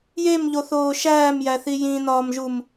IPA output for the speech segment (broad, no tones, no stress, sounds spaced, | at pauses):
j e m ʎ o θ oː ʃ æː m j æ θ i j ĩ n ɒː m ʒ u m